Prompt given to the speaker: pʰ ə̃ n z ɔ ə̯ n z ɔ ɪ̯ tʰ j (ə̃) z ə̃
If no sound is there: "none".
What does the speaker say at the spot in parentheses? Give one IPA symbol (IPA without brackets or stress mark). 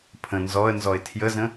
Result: ə